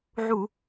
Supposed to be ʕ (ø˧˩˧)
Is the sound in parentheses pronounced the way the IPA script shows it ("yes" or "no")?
no